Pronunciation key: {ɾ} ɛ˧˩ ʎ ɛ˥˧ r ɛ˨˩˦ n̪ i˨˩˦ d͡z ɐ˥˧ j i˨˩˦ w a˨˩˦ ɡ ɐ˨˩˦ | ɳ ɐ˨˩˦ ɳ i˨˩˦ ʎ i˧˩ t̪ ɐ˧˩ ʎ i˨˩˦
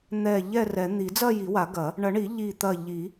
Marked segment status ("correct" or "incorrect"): incorrect